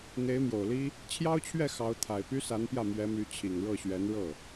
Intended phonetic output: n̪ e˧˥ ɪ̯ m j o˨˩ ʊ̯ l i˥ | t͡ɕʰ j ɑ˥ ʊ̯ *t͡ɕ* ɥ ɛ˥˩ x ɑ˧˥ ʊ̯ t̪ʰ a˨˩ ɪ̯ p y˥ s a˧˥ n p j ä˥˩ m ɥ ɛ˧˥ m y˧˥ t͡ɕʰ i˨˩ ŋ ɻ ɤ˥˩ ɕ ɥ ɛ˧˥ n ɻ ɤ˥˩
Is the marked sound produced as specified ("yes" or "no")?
no